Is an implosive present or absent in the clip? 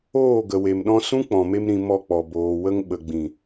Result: present